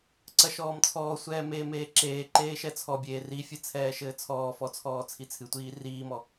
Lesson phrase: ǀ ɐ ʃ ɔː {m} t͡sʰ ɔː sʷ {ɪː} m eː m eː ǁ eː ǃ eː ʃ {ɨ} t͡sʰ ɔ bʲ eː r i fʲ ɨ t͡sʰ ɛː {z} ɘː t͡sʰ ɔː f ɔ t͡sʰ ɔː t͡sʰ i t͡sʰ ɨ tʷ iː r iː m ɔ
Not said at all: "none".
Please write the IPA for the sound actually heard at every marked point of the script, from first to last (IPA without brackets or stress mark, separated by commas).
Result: m, ɛː, ɛ, ʃ